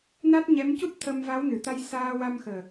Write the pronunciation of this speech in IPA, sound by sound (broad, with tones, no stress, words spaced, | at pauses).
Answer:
na˦˥t̚ɲɛ˧˥mcu˦˥t̚ t̪ʰə˧mva˧˥wnɨ˨˩˨t̪a˧j saː˧wa˧mxəː˨˩